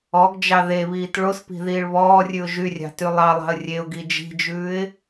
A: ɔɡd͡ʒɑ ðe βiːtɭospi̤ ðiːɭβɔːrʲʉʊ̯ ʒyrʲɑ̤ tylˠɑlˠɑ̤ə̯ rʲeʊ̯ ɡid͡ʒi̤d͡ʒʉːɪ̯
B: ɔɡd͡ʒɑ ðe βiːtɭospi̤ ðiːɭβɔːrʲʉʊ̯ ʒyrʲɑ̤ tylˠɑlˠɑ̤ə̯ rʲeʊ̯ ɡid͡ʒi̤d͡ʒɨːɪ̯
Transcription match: A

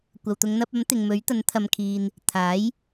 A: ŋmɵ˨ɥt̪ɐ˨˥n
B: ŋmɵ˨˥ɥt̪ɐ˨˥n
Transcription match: B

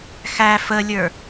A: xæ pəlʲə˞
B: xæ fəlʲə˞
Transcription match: B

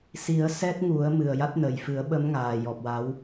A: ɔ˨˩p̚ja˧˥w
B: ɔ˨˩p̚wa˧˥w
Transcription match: B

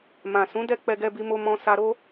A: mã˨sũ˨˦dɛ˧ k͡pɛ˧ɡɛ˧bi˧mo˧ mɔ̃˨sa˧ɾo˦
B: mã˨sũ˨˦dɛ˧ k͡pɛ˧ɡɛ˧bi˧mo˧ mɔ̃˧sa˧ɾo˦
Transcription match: B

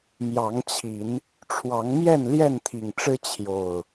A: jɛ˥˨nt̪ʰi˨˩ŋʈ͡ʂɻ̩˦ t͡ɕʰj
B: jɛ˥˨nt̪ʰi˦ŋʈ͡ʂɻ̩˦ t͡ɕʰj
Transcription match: A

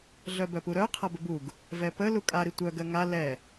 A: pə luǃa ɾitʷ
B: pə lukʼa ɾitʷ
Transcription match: B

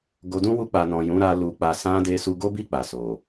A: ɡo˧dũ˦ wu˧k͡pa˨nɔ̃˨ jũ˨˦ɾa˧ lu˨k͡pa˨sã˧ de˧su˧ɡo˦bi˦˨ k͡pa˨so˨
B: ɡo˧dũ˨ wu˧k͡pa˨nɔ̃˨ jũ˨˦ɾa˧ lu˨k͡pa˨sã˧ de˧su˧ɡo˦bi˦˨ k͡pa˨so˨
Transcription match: A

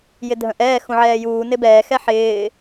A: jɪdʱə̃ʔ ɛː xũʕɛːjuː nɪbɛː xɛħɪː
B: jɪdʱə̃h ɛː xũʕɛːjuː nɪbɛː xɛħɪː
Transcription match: A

